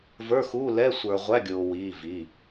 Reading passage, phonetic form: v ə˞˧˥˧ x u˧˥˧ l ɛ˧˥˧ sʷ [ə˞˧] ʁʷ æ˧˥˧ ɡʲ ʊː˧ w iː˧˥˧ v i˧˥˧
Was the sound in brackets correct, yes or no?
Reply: yes